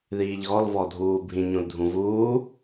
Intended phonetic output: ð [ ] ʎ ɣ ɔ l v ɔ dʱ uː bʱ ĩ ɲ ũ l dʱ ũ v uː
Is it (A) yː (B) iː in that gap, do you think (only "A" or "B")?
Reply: B